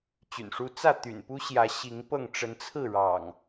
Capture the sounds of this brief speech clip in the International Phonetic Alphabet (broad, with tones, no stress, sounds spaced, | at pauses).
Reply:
t͡ɕ y̰˨˩ n ʂ u˦ t͡s ä˥˨ t̪ y̰˨˩ n p u˦ ɕ j ä˨˦ ɕ i˨˦ ŋ p ɤ˥˨ ŋ ʈ͡ʂ ə˨˦ n t͡sʰ ɹ̩˥˨ ɻ ɑ̰˨˩ ŋ